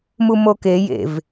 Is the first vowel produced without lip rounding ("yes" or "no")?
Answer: no